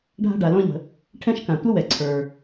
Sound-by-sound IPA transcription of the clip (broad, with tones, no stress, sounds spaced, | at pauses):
ɖʱ a̤˥ ɖ a˩ l ɔ̃˥ ʎ ə̤˩ | ʈʰ ɛ̃˥ ʃ k ã˩ tʷ ə˥ w ɛ˩ ǀʰ ə˞˩